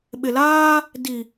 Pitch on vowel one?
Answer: low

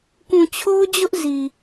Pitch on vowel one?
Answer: low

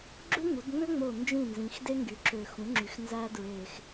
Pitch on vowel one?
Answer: high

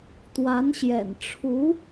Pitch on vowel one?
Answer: rising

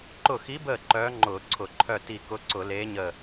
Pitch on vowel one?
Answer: falling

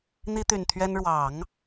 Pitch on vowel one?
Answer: high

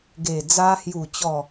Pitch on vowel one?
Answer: low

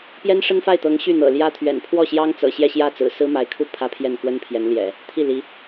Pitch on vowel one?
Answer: high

